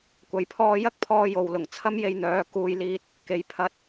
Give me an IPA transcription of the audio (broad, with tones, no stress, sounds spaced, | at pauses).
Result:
kʷ ɐ˨ j pʰ ɔː˧ j ɐ˥ k̚ pʰ ɔː˧ j o˨ w l ʊ˨˩ ŋ t͡sʰ ɐ˥ m j e˧ j n̪ œː˨˧ k uː˨ j l iː˨ t̚ | k e˨ j pʰ ɐ˧ t̚